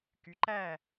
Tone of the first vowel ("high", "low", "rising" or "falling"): rising